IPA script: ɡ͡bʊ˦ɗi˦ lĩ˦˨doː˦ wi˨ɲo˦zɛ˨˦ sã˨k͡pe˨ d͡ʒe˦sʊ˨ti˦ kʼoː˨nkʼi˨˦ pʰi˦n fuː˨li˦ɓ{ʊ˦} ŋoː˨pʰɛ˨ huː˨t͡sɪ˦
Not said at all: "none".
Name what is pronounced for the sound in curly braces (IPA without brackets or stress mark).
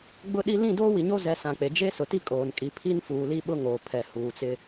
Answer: ʊ˦